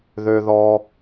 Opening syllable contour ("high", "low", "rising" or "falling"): low